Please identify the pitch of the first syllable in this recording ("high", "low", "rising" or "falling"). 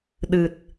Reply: low